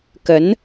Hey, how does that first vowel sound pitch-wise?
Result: rising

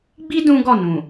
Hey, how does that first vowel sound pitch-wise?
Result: high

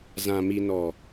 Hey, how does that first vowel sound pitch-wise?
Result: low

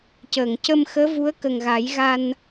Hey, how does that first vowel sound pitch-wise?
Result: low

